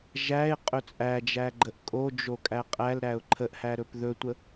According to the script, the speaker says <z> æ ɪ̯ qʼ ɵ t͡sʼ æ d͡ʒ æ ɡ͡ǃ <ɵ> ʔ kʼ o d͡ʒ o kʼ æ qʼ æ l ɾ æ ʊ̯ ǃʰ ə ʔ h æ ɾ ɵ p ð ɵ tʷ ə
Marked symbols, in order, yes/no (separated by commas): no, no